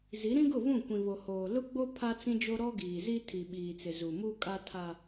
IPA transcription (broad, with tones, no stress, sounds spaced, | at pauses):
z i˨˦ ɾ ĩ˦ ɡ ʊ˦˨ β ũ˦˨ kʷ ĩ˨ β o˨ h oː˨ l ʊ˦ ɡ͡b o˦ pʰ a˦ t͡s ĩ˦ d͡ʒ o˦ ɾ ɔ˦ ɡ iː˨ z i˦ tʰ i˨ ɓ iː˨ t͡s ɪ˨ z u˨ m u˦ kʼ a˦ tʰ a˦